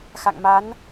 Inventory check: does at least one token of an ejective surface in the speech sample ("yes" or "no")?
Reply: no